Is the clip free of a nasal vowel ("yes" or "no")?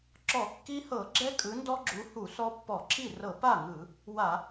yes